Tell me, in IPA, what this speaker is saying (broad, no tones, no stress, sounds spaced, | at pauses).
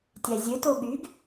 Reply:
tʲ æ zʲ ø t o ɠ y ɡ